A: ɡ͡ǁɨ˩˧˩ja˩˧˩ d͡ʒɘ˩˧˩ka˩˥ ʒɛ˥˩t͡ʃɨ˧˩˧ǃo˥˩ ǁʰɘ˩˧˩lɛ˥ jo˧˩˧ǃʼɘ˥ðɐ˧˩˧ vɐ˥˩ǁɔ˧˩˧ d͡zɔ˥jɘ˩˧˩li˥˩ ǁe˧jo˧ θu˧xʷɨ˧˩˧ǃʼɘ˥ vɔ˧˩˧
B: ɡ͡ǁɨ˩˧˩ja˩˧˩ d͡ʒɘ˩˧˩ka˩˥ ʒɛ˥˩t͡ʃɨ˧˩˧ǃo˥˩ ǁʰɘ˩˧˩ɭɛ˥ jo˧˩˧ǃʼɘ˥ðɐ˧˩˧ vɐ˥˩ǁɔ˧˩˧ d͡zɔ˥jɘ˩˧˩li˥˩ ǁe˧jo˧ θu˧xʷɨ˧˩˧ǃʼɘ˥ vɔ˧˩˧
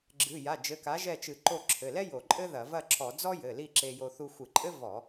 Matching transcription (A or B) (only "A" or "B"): A